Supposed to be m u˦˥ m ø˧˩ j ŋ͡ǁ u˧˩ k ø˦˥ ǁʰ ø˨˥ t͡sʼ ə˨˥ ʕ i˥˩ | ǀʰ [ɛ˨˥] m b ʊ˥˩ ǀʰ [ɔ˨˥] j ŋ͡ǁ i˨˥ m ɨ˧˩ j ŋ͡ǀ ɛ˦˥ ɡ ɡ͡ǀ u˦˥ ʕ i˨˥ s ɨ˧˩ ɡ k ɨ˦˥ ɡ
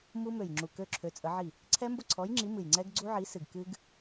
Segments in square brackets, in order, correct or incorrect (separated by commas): incorrect, correct